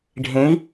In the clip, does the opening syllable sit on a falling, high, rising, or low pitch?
rising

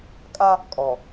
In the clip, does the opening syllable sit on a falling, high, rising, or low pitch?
high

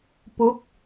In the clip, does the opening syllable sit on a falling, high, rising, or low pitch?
rising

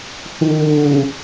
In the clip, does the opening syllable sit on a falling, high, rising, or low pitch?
low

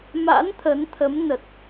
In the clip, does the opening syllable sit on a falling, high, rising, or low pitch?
rising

